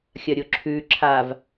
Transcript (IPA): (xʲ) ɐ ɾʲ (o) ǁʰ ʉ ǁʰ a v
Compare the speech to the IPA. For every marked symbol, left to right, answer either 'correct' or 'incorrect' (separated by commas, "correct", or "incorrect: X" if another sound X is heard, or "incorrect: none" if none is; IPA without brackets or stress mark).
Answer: correct, correct